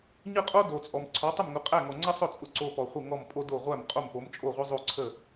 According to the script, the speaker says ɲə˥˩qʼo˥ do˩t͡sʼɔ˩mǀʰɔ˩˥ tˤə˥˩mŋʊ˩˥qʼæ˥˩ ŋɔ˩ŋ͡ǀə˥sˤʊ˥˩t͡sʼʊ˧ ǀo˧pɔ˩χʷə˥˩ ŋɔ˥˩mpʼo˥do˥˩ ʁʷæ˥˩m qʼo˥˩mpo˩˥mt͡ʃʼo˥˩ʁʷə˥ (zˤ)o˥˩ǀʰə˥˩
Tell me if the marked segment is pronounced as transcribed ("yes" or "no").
yes